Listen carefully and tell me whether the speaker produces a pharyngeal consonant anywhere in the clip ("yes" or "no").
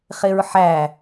yes